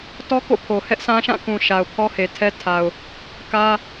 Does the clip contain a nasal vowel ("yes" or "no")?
yes